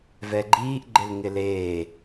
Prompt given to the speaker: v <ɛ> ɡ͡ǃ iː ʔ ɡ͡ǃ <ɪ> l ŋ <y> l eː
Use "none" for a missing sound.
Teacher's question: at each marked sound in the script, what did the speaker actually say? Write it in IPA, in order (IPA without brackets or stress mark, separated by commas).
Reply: ɛ, ɪ, ɪ